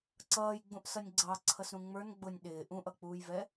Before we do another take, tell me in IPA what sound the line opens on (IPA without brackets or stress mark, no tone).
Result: ǀ